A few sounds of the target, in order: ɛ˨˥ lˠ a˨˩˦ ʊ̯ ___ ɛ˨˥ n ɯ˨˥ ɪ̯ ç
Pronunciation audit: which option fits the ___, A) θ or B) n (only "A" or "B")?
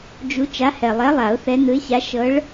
A